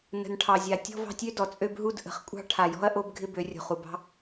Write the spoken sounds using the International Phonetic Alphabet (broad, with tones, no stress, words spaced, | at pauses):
nə̤˨nʈʰɑ˨zʲa˨ tʲɔ̤˦vɑ̤˦tʲø˦dɔ˨ t͡sʼø˦bɦu˦d ʔə̤˨χkʷʼɑ̤˦ ʈʰa˨jɔ̤˦ɐ̯ ʔo˦bɡʱɪ˦ bø˨˦rʲo̤˨χu˨bɑ̤˦